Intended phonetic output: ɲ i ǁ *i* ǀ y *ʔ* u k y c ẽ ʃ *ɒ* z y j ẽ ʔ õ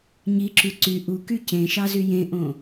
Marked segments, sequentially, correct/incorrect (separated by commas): incorrect, correct, incorrect